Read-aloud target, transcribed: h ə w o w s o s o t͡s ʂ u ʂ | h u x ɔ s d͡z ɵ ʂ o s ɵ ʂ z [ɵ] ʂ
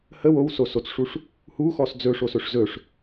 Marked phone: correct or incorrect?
correct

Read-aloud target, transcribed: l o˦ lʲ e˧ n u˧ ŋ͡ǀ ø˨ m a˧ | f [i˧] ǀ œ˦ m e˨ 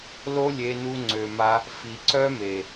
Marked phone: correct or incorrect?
incorrect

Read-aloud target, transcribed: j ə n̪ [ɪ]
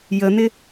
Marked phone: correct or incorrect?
correct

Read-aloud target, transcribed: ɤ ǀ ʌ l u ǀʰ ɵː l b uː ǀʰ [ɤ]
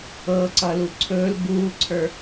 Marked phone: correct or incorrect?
incorrect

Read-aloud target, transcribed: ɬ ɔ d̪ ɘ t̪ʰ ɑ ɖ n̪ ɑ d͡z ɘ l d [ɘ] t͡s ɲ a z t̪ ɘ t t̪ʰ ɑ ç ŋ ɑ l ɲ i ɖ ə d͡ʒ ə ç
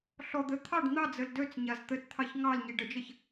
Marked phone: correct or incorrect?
incorrect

